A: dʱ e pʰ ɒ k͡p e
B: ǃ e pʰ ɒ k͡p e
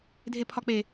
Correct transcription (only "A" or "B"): A